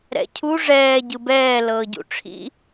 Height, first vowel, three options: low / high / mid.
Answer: mid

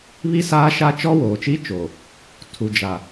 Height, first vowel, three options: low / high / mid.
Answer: high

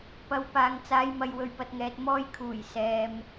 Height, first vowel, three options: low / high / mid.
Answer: low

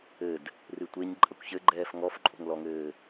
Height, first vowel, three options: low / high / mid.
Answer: mid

